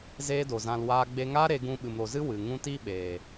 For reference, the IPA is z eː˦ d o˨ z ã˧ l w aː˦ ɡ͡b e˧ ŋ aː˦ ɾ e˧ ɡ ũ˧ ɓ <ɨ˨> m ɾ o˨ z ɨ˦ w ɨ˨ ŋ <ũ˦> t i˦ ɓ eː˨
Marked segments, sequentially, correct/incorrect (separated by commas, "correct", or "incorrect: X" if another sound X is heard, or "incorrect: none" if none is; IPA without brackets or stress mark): correct, correct